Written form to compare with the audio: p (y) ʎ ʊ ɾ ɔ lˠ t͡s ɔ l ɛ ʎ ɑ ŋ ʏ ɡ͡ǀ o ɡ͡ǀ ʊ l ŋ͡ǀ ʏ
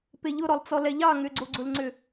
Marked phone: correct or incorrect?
incorrect: e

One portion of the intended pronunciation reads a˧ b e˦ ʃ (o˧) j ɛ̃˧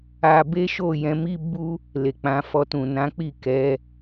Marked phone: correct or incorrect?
incorrect: o˦˨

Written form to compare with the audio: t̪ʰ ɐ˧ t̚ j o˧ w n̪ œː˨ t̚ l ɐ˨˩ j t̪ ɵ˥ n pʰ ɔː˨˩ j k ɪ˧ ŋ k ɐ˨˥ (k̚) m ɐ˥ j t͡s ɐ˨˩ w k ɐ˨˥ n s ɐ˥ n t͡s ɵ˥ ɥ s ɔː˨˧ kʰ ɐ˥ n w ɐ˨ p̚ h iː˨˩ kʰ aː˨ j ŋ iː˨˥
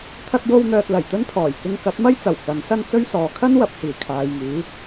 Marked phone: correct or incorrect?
incorrect: t̚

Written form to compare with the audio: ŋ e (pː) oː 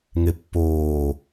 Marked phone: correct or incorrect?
correct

